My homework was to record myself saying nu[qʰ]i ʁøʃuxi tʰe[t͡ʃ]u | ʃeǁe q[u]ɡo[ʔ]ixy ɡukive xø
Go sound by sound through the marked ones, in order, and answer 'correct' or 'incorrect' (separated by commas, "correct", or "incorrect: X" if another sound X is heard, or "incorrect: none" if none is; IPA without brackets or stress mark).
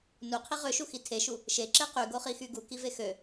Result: correct, incorrect: ʃ, incorrect: y, incorrect: χ